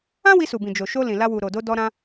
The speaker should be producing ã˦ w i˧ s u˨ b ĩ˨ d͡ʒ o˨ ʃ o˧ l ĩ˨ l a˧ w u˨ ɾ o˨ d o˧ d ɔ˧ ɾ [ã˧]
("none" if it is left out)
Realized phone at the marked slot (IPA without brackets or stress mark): ã˧